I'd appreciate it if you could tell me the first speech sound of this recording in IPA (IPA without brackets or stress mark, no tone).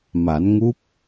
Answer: m